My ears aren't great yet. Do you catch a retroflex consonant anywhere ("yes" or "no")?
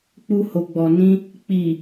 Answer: no